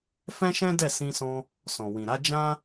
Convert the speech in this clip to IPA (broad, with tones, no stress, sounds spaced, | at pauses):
f ɛ̃˦ ʃ ɛ̃˦ d ɛ˦˨ s ĩ˧ s ɔ̃˧ | s ɔ̃˨ w ĩ˨ ɾ a˨˦ d͡ʒ ã˦